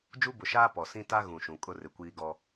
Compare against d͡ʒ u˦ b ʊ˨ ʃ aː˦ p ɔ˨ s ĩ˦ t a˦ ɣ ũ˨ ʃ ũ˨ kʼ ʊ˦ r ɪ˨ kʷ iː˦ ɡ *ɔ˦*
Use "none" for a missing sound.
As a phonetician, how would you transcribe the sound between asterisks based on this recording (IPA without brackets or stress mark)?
ɔ˦